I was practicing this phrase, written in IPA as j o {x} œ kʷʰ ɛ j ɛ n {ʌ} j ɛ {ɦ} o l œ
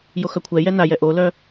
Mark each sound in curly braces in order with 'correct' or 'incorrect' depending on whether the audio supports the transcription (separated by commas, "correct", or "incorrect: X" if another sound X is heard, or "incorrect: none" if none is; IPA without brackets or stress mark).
correct, incorrect: a, incorrect: ʔ